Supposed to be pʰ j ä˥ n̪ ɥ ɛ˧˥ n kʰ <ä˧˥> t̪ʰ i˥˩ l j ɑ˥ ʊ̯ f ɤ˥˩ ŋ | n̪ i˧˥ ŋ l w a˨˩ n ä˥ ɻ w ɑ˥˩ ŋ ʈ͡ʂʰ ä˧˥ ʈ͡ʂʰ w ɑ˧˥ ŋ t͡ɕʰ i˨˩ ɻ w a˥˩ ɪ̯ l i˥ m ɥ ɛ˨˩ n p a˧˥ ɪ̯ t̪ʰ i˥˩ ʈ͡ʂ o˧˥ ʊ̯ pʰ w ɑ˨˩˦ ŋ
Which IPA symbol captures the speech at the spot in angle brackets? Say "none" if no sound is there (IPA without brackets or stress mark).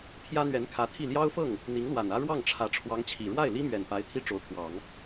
ä˧˥